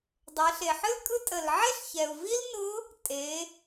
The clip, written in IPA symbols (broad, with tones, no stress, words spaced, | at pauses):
dˤɛ˩˧ɬe˩ħɨ˥l kʼɯ˧˥ tʼə˩lʕe˥ɬçɛ˩u̯ vi˥lnʊ˧˥ | tʼe˩˧